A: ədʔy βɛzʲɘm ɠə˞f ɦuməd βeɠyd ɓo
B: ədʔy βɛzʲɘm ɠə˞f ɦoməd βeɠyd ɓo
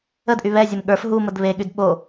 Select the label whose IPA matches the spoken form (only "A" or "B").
A